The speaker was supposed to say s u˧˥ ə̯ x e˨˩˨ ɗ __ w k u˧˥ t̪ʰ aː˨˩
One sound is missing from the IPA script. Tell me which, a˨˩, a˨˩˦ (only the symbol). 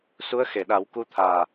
a˨˩˦